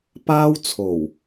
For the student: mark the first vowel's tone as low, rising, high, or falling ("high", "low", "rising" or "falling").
high